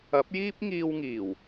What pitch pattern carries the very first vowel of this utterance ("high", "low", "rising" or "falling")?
rising